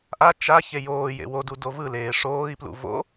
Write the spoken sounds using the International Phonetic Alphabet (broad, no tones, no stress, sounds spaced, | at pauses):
ʔ a t͡ʃ a ç e j oː j ḛ w o d u d o v ɯ l eː ʂ oː i̯ p l ṵ v o̰